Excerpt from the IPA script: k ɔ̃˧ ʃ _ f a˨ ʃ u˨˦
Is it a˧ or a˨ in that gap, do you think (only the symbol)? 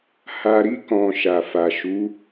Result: a˨